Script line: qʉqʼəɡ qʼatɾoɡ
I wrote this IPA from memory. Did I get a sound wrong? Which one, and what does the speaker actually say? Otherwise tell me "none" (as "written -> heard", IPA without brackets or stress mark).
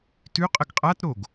q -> t